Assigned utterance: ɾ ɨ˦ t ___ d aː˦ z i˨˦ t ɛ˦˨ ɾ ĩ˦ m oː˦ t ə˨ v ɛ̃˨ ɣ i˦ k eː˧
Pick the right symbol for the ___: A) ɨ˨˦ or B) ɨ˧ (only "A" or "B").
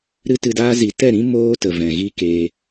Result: B